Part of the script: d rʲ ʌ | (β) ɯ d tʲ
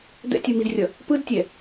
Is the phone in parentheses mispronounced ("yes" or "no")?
yes